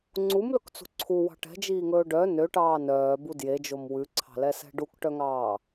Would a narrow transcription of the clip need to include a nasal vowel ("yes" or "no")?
no